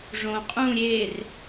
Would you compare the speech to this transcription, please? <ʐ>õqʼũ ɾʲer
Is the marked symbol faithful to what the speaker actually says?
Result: yes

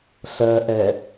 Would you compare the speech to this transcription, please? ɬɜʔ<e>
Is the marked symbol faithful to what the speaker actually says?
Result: no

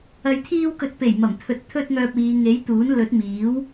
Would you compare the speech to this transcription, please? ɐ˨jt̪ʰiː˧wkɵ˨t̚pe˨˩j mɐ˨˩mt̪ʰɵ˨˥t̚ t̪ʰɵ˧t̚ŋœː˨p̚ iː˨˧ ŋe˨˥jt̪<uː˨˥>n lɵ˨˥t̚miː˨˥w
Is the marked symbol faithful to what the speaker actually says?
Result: yes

